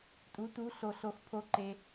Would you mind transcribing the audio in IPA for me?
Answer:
tʼ u˨˥ t u˨˥ ɬ o˩ ɬ o˩ x pʰ o˩˧ ǃ e˩

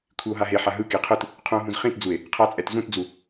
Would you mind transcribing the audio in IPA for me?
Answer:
kʷʰ i o̯ ɦ a ɦ e ħ a ɦ ɯ k i qʰ ɯ t | qʰ ũ o̯ ɦ ũ z χ ĩ t d͡z u e̯ | qʰ a t͡sʼ ɛ t z ũ t d͡z u

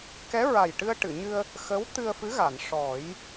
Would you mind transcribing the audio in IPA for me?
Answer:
k ɛ˧˥ ɹ a˨˩ j ʈ ɨ˧ ə̯ ʈ ɨ˨˩˨ ɲ ɨ˧ ə̯ | x ə˧˥ w t̪ ɨ˧ ə̯ f ɨ˧˥ ɣ a˨˩˨ n ʂ ɔ˨˩˦ j

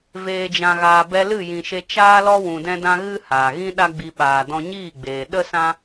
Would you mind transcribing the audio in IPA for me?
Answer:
v eː˨ d͡ʒ ã˨ ɣ aː˨ b ɛ˧ l ɨ˦˨ j ĩ˨ ʃ e˧ t͡ʃ aː˦ l ɔ˦ w ũ˨ d ɛ̃˧ d ã˧ ɣ ɨ˦ h aː˨ ɣ ĩ˦ ɗ a˦ ɡ͡b i˧ ɓ aː˨ d ɔ̃˧ ɲ iː˦˨ ɡ͡b eː˨ ɗ ə˦ s ã˦

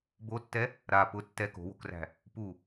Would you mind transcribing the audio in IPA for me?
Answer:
b o tː ɛ | ɾ a p ʊ tː ɛ k o̤ w o̤ k r æ̤ | p u

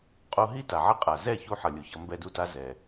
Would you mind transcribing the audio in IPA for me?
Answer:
qʼ o˧ ɦ i˦ t a˨ ʕ ʌ˦ qʼ a˨ z ɛ˦˨ ç u˧ ħ ʌ˨ lʲ u˨ ç ʌ˧ m b ɛ˧ d u˧ t a˧ z ɛ˨

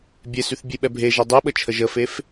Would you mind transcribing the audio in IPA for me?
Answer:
bʲ e s y θ bʲ e ɓ ɛ bʱ e ʒ ɛ dˤ e ɓ ə t͡ʃʰ ə ʒ ə f e f

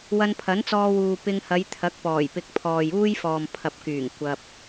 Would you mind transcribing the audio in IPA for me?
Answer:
w ɐ˧ n pʰ ɐ˨˥ n t͡s ɔː˧ w uː˨ p ɪ˧ ŋ h ɐ˨˧ j t̪ʰ ɐ˨˥ k̚ p ɔː˨˩ j p ɪ˧ k̚ pʰ ɔː˨ j uː˥ j f ɔː˨ m pʰ ɐ˨ p̚ k yː˨˩ ŋ kʷ ɐ˧ p̚

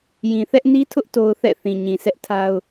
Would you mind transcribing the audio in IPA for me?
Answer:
j ĩ˨ θ ɛ˦ ʔ n i˦ tʰ ʊ˦ ʔ t o˦ ʊ̯ θ ɛ̰˦˨ θ ĩ˨ ɲ ĩ˨ s ɛ˦ ʔ tʰ a˦ ʊ̯

